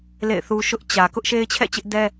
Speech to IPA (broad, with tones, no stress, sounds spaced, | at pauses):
l ḛ˦˨ ɪ̯ θ u˦ ʃ ʊ˦ ʔ t͡ɕ ä˨ k ʊ˦ ʔ ʃ e˦ ɪ̯ t͡ɕʰ ɛ̰˦˨ t͡ɕ ɪ˦ ʔ d ɛ˦